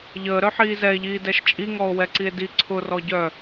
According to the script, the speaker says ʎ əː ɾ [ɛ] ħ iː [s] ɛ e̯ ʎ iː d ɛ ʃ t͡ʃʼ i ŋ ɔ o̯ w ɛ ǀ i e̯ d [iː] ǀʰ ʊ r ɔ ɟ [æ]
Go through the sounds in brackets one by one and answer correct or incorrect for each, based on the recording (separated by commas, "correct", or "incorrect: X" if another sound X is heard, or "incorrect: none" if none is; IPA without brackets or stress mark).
incorrect: œ, incorrect: z, incorrect: i, incorrect: œ